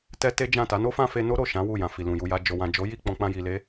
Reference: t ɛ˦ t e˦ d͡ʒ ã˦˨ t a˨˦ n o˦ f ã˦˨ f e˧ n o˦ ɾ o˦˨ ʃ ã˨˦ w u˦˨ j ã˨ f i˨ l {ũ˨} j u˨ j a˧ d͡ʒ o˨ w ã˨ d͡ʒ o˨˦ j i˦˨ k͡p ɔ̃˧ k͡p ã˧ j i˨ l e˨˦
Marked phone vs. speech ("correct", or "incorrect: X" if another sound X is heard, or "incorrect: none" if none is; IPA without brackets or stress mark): correct